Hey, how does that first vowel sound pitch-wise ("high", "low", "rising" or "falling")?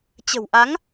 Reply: low